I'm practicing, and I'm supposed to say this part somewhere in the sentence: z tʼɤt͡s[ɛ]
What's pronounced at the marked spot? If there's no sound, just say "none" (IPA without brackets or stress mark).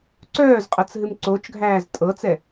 ɛ